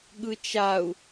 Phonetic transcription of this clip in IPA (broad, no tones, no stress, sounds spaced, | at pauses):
ɠ ɯ t͡ʃ a u̯